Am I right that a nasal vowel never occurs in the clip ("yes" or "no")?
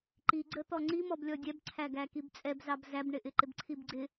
yes